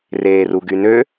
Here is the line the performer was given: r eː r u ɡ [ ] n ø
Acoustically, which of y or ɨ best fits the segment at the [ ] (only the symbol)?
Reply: y